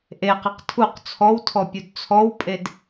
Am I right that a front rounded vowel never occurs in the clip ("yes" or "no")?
yes